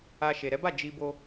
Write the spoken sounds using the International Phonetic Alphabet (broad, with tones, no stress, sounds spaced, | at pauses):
a˧ ʃ e˨ ɾ ɛ˨˦ b a˦˨ d͡ʒ i˧ b o˧